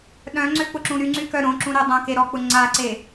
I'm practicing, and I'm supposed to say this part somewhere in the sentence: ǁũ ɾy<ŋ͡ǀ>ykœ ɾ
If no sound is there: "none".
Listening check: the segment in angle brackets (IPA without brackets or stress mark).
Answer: ŋ͡ǀ